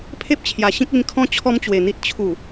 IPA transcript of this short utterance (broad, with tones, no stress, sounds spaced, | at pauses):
pʰ e˦ p̚ t͡ɕʰ j a˨˩ ɕ ĩ˦ k̚ i˧ n kʰ ɔ̃˦ t͡ɕʰ ɔ˦ m t͡ɕ w e˨˩ n̪ i˦ t̚ t͡ɕʰ u˨˩